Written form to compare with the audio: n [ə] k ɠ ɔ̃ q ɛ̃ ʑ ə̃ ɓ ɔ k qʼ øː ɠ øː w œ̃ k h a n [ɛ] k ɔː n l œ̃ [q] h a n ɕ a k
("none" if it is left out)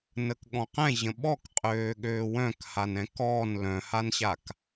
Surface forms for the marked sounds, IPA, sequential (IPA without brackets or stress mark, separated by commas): ə, ɛ̃, none